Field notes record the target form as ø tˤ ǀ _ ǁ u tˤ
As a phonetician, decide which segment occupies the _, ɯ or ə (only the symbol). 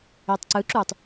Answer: ɯ